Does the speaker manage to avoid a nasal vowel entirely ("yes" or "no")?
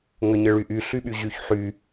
yes